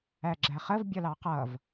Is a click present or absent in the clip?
present